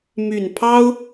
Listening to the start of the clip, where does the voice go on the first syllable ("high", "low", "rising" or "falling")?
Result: low